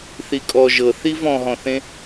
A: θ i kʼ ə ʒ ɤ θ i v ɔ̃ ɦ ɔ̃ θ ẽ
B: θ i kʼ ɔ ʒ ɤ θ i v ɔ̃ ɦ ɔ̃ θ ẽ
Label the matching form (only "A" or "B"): B